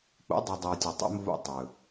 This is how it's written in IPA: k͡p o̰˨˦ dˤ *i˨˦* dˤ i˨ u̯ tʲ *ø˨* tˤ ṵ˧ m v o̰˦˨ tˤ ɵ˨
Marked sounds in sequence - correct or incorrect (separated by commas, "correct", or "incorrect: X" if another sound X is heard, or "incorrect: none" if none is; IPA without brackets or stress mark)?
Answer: incorrect: i˨, incorrect: ə˨